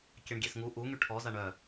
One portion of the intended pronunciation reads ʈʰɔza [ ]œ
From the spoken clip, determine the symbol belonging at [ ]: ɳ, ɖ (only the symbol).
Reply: ɳ